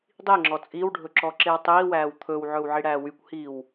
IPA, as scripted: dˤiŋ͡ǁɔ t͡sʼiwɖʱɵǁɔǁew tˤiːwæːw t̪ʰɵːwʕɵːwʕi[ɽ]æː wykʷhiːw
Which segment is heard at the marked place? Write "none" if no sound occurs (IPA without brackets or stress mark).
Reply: ɽ